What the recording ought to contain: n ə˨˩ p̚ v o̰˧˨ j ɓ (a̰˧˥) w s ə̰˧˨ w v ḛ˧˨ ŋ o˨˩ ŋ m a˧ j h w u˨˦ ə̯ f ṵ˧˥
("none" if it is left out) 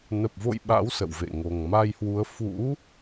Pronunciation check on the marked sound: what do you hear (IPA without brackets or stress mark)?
a̰˧˥